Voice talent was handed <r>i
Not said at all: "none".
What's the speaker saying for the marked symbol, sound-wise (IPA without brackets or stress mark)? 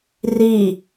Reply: r